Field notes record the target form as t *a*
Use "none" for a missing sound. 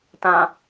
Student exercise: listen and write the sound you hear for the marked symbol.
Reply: ã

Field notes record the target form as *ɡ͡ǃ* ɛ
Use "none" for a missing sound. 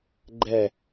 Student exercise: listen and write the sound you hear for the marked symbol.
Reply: ɡ͡ǃ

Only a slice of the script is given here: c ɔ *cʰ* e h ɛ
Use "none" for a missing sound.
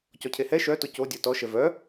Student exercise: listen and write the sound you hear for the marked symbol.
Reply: cʰ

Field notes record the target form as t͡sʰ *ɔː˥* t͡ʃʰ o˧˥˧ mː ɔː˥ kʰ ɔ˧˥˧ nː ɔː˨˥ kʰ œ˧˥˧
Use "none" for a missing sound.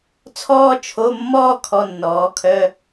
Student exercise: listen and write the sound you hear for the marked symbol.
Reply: ɔː˥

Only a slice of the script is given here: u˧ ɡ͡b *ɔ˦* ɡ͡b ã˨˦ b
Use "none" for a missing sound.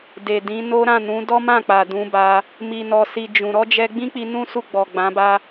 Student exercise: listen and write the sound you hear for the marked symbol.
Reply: ɔ˨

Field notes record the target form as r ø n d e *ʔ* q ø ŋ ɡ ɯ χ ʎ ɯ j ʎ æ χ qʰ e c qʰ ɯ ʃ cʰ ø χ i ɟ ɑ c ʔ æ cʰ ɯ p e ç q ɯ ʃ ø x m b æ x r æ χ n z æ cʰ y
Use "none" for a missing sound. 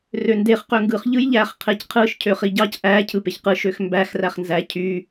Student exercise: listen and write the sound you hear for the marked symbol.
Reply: χ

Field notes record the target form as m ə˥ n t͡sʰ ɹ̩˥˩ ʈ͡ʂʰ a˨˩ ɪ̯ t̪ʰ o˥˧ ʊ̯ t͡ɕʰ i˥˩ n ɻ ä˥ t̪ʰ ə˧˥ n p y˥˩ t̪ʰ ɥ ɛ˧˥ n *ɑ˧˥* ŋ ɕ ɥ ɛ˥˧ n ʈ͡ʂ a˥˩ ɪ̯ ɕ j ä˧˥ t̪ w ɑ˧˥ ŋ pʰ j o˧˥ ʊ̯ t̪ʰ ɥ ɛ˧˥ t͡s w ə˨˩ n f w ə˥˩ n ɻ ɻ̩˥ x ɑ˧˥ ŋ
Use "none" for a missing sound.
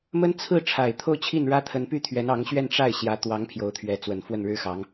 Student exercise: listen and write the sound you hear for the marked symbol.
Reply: ɑ˧˥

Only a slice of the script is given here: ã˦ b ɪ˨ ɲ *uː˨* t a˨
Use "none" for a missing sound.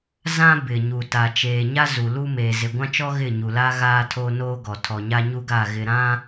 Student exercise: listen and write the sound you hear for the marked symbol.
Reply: u˨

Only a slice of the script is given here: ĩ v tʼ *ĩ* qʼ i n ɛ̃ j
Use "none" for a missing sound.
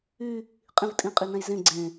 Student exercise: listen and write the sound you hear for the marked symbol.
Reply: ĩ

